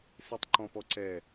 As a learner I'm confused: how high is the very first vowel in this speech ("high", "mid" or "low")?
mid